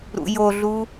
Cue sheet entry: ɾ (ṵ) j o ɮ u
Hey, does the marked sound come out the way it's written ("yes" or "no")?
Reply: yes